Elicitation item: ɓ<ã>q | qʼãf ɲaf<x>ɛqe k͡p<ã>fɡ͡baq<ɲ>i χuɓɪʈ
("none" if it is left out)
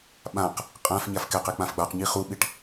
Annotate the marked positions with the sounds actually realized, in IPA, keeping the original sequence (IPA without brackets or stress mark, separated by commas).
ã, k, ã, ɲ